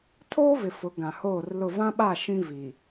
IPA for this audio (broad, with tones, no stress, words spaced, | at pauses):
tʰoː˦vɪ˨ fʊ˨˦ ɡã˨hoː˦˨rlʊ˦˨ vã˦ɓa˦˨ ʃĩ˦vi˨